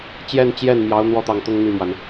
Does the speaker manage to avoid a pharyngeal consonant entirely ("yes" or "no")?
yes